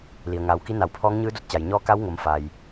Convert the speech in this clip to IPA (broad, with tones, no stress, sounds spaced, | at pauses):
l i˩ ə̯ ŋ aː˩˧ w k i˧˥ n a˧˩ w pʰ ɔː˧˥ ŋ ɲ ɯː˧˥ d o˧ t̚ t͡ɕ a˩ j ɲ ɔː˧˥ k a˧˥ w ŋ o˩˧ m f a˩ j